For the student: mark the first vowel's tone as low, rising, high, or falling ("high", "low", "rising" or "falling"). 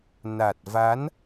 low